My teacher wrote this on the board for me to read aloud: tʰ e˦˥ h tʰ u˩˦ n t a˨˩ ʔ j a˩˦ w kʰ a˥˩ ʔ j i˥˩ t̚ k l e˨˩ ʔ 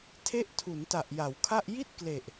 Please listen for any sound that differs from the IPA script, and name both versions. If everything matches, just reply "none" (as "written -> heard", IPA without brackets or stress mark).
h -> ʔ